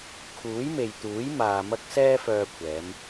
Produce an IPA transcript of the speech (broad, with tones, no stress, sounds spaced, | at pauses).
kʰ uː˨˥ j m e˨ j t̪ uː˨˥ j m aː˨ m ɐ˧ k̚ s ɛː˥ f œː˧ kʷʰ ɛː˨˧ m